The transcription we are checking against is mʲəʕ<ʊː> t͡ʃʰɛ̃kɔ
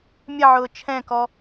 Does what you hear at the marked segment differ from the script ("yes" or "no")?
no